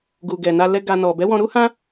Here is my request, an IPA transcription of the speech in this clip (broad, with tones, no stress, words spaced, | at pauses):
ɡu˨ɡɛ˨na˧ lɛ˧ ɡa˨ nɔ˨bɛ˨˦wɔ̃˧ ɾu˦hã˦